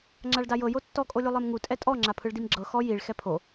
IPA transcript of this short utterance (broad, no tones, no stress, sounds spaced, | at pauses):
ŋ͡ǁ a ɭ d a j ɤ j o tː ɔ kʼ o lʲ u lˠ e m ŋ u tʼ ɛ tʼ ɔ ŋ͡ǁ a pʰ ɯ ɭ d i m ɡ͡ǁ ɤ x ɔ j i ɭ x ɛ pʰ o